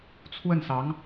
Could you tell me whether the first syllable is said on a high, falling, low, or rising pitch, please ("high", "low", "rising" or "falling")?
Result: falling